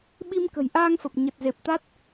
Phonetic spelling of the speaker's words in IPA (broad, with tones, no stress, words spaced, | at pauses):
ɓi˧m kə̤˨˩jʔaː˧ŋfə˨˩p̚ ɲə˨˩t̚ze˨˩p̚t̪a˦˥t̚